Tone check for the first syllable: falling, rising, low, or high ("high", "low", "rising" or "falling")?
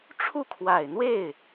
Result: falling